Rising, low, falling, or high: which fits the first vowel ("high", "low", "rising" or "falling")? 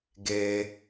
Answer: high